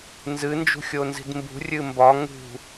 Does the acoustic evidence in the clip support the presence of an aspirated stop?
no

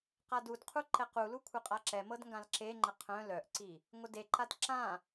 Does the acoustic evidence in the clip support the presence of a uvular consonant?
yes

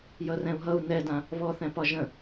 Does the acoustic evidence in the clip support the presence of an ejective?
no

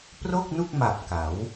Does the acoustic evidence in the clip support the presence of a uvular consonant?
no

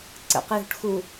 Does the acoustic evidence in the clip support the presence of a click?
yes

